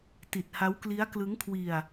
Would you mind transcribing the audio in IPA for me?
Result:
t i˨˩ t̚ h a˦˥ w k l i˦˥ a̯ k l ɯ˦˥ ŋ kʰ w i˧ a̯

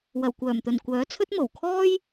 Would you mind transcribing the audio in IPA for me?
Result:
w ɐ˨˩ w kʷ œː˨˩ m t̪ ɵ˨˩ n kʷ œː˨˥ t͡sʰ ɵ˥ t̚ m o˨˩ w kʰ ɔː˥ j

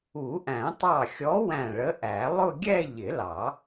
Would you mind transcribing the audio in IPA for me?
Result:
u˨˩˦ ʔ æ̃˨˩˦ tˤ ɑ˧˩ xʲ ɔ˨˥ w æ̃˧˩ ɭ ə˨˥ ʔ æ˨˩˦ lˠ ʊ˥˧ ɡʲ ɛ˥˧ ʎ ɪ˨˩˦ l ɑ˨˩˦

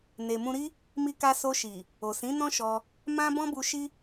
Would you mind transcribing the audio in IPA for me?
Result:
n e˨ m ũ˧ ɾ i˦ | m i˧ k a˧ s o˧ ʃ i˨ | o˨ s ĩ˨˦ n ɔ̃˦ ʃ ɔ˧ | m ã˦ b ɔ̃˦ b u˧ ʃ i˦

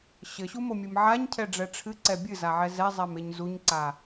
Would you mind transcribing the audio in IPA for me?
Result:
ɕ ɘ ɕ u m o mʲ ɨ m ʕ a ɲ cʰ ɛ ɖ͡ʐ ɛ ʈ͡ʂʰ ɨ ǀ ɛ bʲ ɨ z a ʕ ɛ z ɛ zˤ ɛ m e ɲ z u ɲ ǀ a

